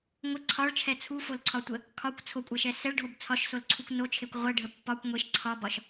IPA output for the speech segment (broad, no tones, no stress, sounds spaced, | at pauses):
ŋʷ ə ǀʰ ɒ ɭ t͡ʃʰ ɛ t͡sʰ u f o l ǀʰ ɒ tʷ ə | kʰ ɒ kʷ t͡sʰ o kʷʼ ɛ ʃ ɛ s ɛ ɭ ɖʱ o b t͡sʰ ɒ ʃ s o l ǀʰ u kʷ n o t͡ʃʰ e kʷ ʁʷ ɛ ɖʱ ə pː ɒ kʷ ŋʷ e ʃ ǀʰ ɒ b ɒ ʃ